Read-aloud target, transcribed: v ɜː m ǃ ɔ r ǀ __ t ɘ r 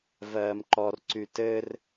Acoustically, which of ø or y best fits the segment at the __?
y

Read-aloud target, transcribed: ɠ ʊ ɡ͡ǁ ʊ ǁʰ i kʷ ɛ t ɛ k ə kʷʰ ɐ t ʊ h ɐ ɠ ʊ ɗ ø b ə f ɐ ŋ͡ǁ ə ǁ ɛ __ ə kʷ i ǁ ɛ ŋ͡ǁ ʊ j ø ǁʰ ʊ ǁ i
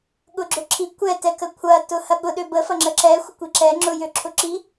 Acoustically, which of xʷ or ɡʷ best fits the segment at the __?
xʷ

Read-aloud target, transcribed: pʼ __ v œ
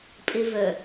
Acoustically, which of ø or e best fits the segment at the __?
e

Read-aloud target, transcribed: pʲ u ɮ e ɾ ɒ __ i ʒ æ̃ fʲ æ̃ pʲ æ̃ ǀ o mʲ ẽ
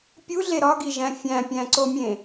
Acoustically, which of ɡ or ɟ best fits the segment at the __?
ɡ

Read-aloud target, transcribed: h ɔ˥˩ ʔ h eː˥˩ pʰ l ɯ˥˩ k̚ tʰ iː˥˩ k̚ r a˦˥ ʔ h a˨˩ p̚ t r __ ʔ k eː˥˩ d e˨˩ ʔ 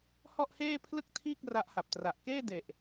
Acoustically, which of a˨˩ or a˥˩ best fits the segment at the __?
a˨˩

